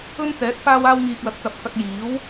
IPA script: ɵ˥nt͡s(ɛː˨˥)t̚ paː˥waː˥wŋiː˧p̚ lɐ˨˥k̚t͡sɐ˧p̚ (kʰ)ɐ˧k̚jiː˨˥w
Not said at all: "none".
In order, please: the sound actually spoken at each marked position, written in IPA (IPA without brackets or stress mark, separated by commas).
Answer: ɛː˨˥, k